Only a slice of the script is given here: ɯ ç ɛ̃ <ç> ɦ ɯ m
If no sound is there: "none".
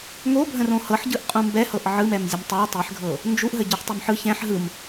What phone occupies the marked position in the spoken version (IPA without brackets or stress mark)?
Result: ħ